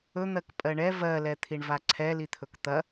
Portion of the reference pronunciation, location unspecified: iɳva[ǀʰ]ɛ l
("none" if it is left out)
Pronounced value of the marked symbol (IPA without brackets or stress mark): ǀʰ